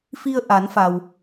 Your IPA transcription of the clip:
f i˧ ə̯ ʔ a˩˧ n f a˩ w

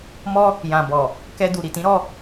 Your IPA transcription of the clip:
m ɔ˦ | j ã˨ b ɔ˨ | k ɛ˧ d u˨ ɾ i˨ t ĩ˨˦ ɾ ɔ˧

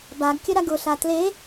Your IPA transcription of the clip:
b a ɡ kʲ ə ɾ a ɡ ʊ ɬ a t l e

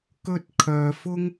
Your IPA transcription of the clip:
k ɵ˥ t̚ kʰ œː˧ f ʊ˥ ŋ

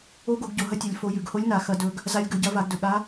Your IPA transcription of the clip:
o˧˥ ɡ o˩˧ ɡ ɟ o˩ ɦ ɐ˧˥ tʲ ɐ˩˧ lʲ f o˩˧ j ʉ˩ ɡ h o˧˥ lʲ n a˩˧ x ɐ˧ d ɵ˧ ɡ | z a˧˥ lʲ ɡ ɵ˩˧ ɟ ɐ˧˥ v a˩˧ ɡ d ɵ˩ ɠ a˧˥

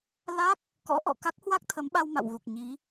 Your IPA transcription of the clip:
l a˦˥ k̚ | k ɔ̰˧˥ ʔ ɔ̰˧˨ k a˦˥ k̚ h w a˦˥ k̚ t̪ʰ ə˨˦ m ɓ a˧ w m a̰˧˨ w ɣ u˨˩ k̚ ɲ i˨˦

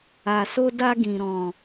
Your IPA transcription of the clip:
a˨ s o˧ d a˧ ɡ ĩ˨ ɾ ɔ̃˨

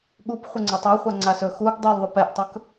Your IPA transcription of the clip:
ɠ u p χʷ ɘ ŋ͡ǀ a tˤ æ χʷ a ŋ͡ǀ a s ɵ x u ɡ dˤ ɛ l ðˤ ɵ p ɛ ʔ tˤ ɵ k

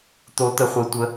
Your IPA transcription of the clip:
t̪ o˦˥ t̪ ə˦˥ χʷ e˦˥ tʷ ə˦˥

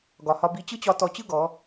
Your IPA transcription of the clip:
ɡ ɒ˨ h ɒ˧ b i˧ t͡ɕ ɯ˦ t͡ɕ ɒ˧ t ɔ˧ t͡ɕ ɯ˦ ɡ ɔ˨˦

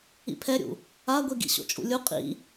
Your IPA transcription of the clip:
ḭ pʰ ɛ ɾʲ ṵ | a ɡʷ i ɡ ḭ ɕ o̰ t͡ʃʼ ṵ lʲ u qʼ ḭ

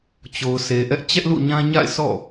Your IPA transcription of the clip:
t͡ɕ o˨ ʊ̯ s e˨ ʔ ɛ˦ ʔ t͡ɕ ɛ˦ ʔ l ṵ˦˨ ɲ ã˦ ɲ a̰˦˨ ɪ̯ s ɔ̰˦˨

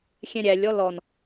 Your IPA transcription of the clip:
xʲ ɛ̃ ɾʲ æ lʲ ɔ l ɔ n

